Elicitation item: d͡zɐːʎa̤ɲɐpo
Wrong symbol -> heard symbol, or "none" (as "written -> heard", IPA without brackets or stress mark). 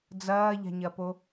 none